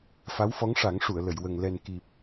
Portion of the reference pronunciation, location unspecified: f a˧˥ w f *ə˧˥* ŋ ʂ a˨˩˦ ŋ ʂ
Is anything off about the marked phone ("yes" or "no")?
yes